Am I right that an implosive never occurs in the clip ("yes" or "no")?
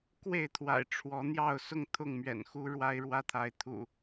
yes